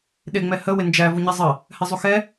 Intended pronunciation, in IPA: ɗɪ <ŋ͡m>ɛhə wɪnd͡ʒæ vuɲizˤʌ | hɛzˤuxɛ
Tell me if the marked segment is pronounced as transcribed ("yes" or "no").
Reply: yes